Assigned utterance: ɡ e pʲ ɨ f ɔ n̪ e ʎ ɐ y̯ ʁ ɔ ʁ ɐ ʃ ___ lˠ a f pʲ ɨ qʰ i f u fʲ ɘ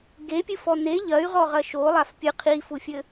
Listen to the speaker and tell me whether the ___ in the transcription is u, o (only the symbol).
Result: o